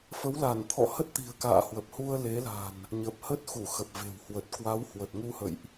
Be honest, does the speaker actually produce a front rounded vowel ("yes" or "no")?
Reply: no